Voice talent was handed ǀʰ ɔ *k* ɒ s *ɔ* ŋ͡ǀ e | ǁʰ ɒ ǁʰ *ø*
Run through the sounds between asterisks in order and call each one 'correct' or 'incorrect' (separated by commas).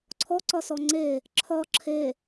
incorrect, correct, incorrect